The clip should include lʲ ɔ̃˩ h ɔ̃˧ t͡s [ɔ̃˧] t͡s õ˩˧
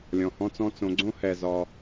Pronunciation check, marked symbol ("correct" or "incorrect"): correct